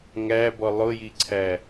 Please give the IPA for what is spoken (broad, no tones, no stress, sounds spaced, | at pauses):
ŋ æ b ɔ lˠ ʊ j i ǀʰ æ